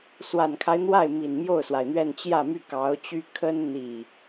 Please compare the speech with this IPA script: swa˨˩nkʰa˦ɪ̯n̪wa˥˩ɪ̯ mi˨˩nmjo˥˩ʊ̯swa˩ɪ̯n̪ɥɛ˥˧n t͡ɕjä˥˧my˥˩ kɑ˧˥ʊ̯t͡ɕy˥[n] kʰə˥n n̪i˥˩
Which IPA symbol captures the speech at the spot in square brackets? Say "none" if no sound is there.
none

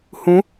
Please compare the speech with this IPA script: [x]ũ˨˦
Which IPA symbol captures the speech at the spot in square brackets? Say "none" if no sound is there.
h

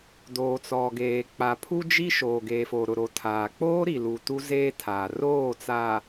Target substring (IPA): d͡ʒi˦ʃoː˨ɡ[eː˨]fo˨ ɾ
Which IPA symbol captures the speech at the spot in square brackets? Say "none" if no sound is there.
eː˨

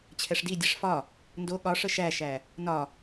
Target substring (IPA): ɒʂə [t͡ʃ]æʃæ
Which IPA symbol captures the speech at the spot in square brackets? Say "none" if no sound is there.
ʃ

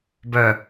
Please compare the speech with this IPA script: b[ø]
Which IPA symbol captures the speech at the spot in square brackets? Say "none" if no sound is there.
œ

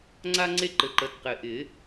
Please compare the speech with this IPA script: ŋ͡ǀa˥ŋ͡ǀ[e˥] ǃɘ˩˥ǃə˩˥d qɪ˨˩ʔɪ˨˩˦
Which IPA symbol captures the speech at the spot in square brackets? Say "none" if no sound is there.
e˥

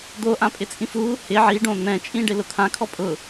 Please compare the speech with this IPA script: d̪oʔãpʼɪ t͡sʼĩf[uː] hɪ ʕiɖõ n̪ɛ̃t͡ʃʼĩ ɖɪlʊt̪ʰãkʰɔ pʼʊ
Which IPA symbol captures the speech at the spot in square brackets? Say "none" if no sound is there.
uː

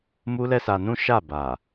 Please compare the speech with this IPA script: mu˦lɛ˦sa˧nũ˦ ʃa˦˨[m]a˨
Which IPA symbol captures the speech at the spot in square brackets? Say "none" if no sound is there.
b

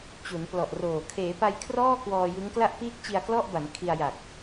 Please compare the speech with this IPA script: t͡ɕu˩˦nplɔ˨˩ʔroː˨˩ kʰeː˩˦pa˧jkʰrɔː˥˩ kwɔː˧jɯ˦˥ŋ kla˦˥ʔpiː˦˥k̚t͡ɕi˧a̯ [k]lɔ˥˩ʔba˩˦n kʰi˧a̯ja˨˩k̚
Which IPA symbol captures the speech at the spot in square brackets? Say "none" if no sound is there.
k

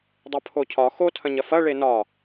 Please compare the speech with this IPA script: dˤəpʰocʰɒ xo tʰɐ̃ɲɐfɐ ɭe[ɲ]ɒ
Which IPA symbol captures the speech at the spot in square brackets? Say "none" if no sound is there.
n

